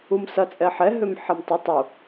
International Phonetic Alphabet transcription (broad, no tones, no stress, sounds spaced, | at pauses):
u m s ɐ t͡sʼ ɛ ħ ɛ ɦ ø m ħ ɛ m tˤ ʏ tˤ u